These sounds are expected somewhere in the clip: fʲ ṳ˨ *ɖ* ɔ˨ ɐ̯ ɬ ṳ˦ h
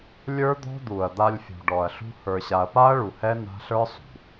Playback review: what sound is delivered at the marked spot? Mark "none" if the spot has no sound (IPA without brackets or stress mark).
ɖ